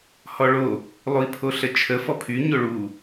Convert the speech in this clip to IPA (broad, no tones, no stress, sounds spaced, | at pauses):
h ɔ ɭ o | lˠ u i̯ pʰ o ɬ ə t͡ʃʰ ə f ɔ pʰ y ɲ o ɭ u